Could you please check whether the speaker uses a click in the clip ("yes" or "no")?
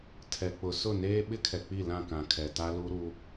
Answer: no